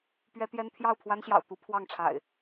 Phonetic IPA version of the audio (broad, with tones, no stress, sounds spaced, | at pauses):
p ɥ ɛ˦ t̪ j ɛ˦ n t̪ʰ j ɑ˥˨ ʊ̯ pʰ w a˦ n ɕ j ɑ̰˨˩ ʊ̯ t̪ u˨˦ pʰ w ɑ˥˨ ŋ ʈ͡ʂʰ a̰˨˩ ɪ̯